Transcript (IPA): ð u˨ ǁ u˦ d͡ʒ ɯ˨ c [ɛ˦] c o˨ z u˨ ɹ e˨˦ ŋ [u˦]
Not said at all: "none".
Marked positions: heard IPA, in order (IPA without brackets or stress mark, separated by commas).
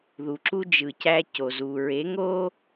æ˦, o˦